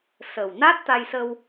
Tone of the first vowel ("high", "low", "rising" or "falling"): low